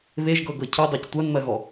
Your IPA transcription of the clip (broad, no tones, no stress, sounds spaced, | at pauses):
β e ʒ ɡ ɤ ɡ ɤ cʰ y dˤ ɜ c tʷ ɜ n m ɜ ɣ ɔ